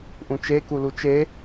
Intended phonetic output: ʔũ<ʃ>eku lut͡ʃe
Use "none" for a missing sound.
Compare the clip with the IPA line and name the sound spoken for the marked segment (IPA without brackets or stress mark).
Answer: t͡ʃ